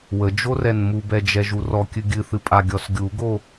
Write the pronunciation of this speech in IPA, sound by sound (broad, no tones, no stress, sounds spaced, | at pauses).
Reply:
w ə d͡ʒ o r ɛ n m u b ɛ d͡ʒ ɛ ʒ u r ɔ kʲ ɨ ɡʲ ɨ θ ɨ pʼ a ɡʲ ɔ s ɡʲ u ɡ o